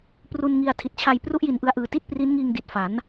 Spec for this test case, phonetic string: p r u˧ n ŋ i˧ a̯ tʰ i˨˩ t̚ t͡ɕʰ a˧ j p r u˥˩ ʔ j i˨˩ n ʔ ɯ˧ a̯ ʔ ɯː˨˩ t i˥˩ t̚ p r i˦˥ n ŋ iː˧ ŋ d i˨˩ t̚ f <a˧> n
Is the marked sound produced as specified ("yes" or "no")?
no